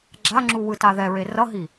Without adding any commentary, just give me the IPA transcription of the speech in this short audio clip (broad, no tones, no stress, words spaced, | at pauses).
ɡ͡ǁaŋ͡ǁu wɯtaðɛɹe rʌɦi